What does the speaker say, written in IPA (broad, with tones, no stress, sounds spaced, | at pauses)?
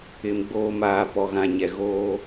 ɪ˨ m ɡ͡b oː˨ m aː˨ p ɔ˨ ɣ ã˨ ɲ ɛ˨ ɣ oː˦